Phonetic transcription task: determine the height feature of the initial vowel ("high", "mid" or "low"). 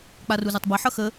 low